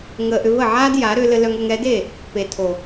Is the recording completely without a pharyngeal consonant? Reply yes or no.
no